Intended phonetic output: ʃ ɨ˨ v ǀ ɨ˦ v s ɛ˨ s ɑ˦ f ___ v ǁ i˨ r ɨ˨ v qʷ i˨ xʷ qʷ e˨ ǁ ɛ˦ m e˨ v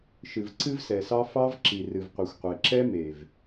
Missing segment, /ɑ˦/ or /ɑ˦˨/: ɑ˦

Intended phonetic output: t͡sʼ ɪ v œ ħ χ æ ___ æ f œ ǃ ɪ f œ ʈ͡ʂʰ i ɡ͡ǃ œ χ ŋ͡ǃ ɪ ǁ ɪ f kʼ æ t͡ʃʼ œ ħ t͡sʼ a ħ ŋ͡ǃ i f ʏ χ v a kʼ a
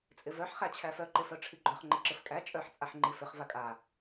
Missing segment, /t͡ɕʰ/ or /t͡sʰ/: t͡ɕʰ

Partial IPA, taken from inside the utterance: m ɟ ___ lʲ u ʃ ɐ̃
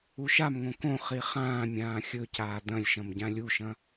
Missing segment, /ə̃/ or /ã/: ã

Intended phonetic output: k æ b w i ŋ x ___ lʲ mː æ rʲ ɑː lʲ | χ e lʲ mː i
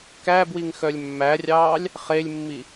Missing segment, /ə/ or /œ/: œ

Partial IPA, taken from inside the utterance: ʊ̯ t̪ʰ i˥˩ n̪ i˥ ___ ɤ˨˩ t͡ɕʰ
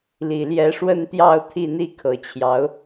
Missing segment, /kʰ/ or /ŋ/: kʰ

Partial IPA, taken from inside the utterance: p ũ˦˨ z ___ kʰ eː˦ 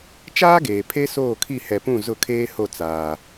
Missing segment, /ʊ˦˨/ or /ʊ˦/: ʊ˦˨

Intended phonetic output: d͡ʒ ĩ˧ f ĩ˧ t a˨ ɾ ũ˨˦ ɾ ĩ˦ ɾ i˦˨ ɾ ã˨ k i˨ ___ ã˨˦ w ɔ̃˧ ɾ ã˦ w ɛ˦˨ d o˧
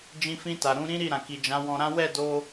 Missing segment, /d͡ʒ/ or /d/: d͡ʒ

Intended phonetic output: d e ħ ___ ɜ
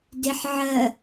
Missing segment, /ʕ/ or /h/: ʕ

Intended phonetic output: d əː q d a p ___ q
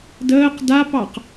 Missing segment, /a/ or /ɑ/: ɑ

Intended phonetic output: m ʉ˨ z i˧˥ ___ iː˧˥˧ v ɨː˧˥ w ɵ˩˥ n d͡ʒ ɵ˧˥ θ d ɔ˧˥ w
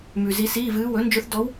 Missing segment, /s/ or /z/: s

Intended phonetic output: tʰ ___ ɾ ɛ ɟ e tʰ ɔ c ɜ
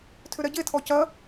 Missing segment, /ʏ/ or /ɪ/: ʏ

